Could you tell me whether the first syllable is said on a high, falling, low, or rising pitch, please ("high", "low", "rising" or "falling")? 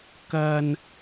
low